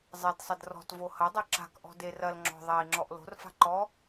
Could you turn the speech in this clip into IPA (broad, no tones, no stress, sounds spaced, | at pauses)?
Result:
zˤ e d sˤ ɐ d r ɔ̤ t v o h ɐ dˤ o ǁ a̤ k ʔ ɔ̤ d e r ɐ l ŋ͡ǁ ɔ̤ ðˤ ɛ i̯ ŋ͡ǁ ɔ ʔ l o̤ r f a̤ ǃ ɔ